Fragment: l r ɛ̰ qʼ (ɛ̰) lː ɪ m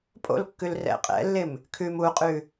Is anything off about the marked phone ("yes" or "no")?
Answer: no